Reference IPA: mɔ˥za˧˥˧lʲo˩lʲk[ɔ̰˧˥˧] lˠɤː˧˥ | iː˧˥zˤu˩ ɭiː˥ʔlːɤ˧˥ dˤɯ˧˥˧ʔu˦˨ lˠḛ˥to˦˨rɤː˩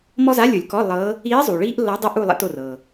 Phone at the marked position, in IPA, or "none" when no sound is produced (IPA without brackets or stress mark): ɔ˧˥˧